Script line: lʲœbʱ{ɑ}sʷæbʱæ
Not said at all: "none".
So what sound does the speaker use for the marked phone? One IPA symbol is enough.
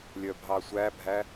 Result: ɑ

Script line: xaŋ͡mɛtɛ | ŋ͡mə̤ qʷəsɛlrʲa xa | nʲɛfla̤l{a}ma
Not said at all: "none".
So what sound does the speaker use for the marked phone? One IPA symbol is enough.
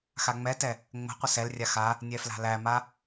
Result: æ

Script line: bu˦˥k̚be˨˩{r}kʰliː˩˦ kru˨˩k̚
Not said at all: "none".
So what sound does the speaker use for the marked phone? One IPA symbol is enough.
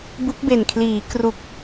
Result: n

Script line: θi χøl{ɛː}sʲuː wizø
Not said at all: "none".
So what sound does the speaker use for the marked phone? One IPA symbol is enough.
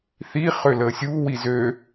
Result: əː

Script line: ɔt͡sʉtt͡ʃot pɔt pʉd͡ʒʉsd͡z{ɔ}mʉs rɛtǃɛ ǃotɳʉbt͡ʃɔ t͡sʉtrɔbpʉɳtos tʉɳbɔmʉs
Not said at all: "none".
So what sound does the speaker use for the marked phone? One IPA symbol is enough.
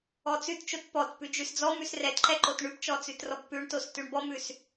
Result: ɔ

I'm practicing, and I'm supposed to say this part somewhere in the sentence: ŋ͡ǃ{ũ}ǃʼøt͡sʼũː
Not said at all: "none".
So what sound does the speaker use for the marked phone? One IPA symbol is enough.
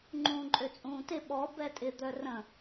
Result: ũː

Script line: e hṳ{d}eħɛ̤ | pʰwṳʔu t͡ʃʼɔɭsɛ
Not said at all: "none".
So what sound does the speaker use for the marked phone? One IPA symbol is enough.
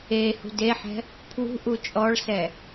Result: d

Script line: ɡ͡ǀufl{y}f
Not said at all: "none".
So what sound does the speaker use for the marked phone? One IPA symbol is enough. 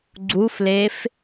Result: e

